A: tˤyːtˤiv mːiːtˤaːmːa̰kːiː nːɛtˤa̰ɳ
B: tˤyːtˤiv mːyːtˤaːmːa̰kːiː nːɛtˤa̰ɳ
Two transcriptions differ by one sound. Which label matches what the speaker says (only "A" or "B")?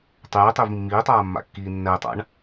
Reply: A